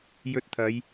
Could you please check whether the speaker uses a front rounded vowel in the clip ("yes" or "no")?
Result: no